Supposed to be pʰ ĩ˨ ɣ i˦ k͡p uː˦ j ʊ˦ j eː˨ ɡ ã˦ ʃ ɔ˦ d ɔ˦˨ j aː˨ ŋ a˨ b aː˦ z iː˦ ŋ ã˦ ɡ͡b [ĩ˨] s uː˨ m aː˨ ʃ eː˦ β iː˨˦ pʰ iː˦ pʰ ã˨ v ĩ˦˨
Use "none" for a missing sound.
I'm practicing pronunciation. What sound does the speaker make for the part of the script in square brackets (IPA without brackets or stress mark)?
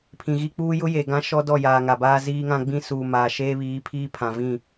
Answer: ĩ˦